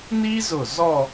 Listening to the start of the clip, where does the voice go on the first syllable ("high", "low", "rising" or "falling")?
high